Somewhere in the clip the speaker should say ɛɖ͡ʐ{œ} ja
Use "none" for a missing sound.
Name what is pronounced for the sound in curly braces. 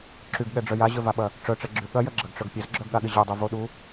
œ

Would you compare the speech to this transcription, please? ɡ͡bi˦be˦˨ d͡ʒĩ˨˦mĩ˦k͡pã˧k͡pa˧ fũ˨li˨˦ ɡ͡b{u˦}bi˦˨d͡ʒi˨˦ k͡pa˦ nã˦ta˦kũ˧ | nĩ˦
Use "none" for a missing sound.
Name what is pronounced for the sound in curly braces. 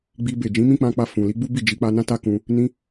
u˦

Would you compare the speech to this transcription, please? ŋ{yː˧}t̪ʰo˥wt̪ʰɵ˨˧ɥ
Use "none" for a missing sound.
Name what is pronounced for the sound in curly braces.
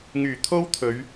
yː˨˩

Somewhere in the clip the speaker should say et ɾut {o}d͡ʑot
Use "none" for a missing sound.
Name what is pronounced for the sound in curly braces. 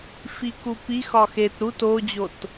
o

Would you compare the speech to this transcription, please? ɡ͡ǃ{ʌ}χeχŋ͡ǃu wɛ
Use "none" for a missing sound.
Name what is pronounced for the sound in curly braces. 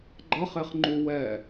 ʌ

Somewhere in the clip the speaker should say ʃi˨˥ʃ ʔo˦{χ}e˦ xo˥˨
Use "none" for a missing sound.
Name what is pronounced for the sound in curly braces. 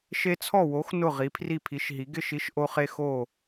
χ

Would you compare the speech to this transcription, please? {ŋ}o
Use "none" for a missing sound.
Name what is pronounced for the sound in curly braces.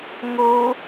ŋ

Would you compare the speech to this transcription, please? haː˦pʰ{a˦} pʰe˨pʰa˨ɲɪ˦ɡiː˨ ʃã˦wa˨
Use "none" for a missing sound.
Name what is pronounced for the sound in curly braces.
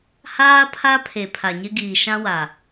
a˦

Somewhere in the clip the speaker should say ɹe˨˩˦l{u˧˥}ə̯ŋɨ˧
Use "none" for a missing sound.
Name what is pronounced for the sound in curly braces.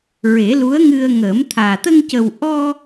u˧˥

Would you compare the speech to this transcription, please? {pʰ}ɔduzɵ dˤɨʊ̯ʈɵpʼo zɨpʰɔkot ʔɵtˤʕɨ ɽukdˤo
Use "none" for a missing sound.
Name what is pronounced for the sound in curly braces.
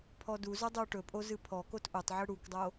pʰ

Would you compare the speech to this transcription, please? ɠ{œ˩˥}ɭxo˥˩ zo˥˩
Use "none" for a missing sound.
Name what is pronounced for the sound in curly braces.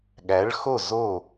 æ˩˥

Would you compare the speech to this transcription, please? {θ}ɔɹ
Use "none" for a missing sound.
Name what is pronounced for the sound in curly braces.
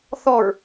θ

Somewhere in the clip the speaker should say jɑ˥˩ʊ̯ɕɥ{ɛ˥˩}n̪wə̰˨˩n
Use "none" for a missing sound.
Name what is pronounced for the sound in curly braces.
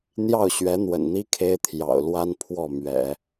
ɛ˧˥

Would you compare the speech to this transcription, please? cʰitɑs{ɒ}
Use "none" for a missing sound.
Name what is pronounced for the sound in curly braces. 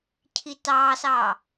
ɑ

